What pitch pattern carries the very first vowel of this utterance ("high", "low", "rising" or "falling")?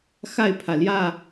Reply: falling